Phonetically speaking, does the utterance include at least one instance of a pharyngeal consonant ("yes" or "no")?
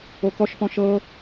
no